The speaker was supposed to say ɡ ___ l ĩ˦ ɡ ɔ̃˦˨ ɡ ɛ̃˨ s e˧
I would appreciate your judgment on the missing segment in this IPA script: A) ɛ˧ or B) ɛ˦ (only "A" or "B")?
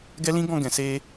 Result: B